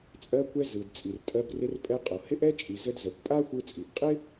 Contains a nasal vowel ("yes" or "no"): no